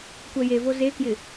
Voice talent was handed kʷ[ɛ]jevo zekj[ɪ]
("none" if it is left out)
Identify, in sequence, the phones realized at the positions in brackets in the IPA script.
ɛ, ɪ

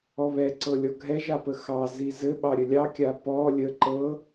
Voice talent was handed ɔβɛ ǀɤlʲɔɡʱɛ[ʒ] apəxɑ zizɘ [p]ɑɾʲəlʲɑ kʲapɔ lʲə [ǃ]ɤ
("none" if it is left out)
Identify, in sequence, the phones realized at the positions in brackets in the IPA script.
ʒ, ɓ, ǃ

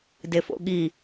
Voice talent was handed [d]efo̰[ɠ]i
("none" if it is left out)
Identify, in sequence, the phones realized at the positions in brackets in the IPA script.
d, ɠ

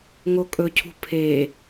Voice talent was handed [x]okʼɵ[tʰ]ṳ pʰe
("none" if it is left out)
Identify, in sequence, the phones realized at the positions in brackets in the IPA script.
ŋ, cʰ

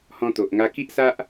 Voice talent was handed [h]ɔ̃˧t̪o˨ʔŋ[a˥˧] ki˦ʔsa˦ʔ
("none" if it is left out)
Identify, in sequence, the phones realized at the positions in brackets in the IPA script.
h, a˧

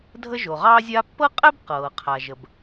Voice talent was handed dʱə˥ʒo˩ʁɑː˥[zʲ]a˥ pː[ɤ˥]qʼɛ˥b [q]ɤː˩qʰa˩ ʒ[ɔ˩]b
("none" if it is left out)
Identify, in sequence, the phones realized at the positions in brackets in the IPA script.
zʲ, ɤ˥, q, ə˩

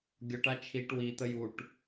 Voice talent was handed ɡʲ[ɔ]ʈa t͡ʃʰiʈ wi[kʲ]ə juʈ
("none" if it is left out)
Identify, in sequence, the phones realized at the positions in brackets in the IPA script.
ɔ, t̪

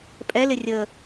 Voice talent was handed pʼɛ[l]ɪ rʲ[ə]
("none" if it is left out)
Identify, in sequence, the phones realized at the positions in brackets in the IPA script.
l, ə

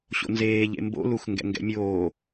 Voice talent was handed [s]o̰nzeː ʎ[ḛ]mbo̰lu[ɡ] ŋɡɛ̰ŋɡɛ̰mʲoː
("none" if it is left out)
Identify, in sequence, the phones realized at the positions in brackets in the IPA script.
ɕ, ḛ, x

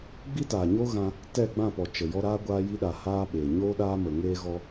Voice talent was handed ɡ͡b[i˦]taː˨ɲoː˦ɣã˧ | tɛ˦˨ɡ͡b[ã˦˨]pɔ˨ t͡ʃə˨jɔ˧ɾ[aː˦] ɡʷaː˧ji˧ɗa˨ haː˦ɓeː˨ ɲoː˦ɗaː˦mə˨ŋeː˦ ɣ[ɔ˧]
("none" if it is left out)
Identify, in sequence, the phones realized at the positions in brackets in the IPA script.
i˦, ã˦˨, aː˦, ɔ˦

